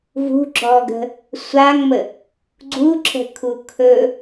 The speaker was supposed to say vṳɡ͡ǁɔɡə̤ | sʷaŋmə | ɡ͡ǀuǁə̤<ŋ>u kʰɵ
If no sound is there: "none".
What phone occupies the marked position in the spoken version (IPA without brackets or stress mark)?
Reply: kʰ